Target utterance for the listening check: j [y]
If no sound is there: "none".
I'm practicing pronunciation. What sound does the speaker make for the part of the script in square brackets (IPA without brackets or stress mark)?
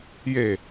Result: e